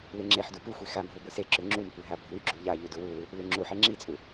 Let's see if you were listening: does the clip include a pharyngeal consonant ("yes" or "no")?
yes